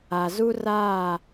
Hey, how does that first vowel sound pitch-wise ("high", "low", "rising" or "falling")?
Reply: low